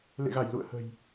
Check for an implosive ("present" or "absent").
absent